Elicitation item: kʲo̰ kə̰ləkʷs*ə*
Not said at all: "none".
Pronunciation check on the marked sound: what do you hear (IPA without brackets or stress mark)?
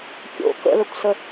ə